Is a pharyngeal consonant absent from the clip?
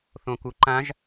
yes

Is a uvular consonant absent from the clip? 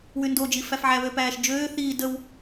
yes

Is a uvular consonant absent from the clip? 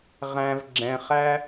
no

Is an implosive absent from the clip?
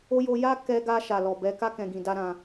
yes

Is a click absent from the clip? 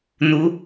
yes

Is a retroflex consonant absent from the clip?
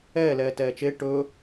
no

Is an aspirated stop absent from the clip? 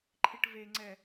no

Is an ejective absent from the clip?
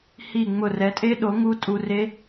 no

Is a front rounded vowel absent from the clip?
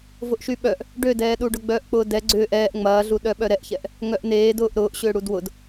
no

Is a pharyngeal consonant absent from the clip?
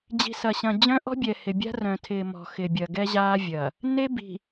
yes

